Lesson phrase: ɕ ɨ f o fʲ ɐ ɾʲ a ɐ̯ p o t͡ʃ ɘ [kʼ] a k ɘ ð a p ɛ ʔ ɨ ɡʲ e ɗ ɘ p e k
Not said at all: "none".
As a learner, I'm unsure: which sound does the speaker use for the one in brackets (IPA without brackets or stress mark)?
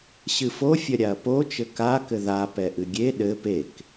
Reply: k